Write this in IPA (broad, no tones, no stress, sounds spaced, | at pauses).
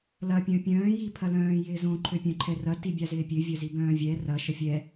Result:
l ɐ pʲ œ̃ pʲ œ̃ː j i pʰ ɐ l œ̃ː j ɪː z õ ǃʰ ø pʲ œ̃ ǃʰ ɛ r ɐ t i bʲ a z ɪː pʲ ø vʲ œ z i b œ̃ː vʲ ɛ r ɐ ʃ ə fʲ ɛ